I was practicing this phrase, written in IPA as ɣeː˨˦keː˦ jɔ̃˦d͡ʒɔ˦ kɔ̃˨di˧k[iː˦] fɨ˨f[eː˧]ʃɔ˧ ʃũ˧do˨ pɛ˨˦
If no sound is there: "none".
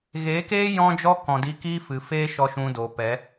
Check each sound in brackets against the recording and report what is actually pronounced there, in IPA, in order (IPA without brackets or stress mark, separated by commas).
iː˦, eː˦